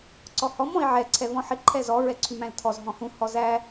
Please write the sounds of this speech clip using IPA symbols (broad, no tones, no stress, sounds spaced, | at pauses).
ǀ ɔ h ɔ m ɔ̃ i̯ ʕ ɛ ǀʰ ɛ v ɔ̃ ħ ɪ ǃʰ ɛ z ɔ ɹ ɛ ǀʰ y m æ̃ l tʰ ɔ z ɦ ɔ̃ h ũ h ɔ z æ